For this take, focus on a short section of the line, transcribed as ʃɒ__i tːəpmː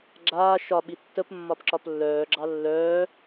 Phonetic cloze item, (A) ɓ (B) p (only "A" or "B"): A